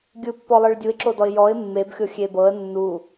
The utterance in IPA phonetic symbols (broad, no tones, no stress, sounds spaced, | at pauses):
ɡʲ ɯ pː ɔ lˠ ɯ ɭ dʲ u ɪ̯ ǁ o d ɔ ɪ̯ j ɔ ɪ̯ mː e b xʲ o xʲ e b ɤ ə̯ nː u